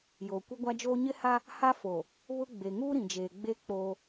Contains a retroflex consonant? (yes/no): no